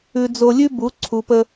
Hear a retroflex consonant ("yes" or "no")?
no